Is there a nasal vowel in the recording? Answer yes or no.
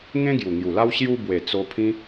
yes